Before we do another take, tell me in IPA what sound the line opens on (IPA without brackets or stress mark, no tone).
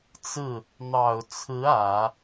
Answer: t͡s